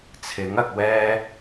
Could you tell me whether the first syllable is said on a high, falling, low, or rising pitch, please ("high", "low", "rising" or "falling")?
rising